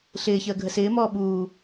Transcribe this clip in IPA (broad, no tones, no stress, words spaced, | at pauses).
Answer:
ɬɪːçəː ɡʱəsɪːmɔː ɓuː